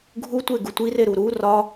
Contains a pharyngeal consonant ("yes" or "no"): no